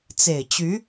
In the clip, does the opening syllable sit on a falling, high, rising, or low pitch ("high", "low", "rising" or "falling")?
low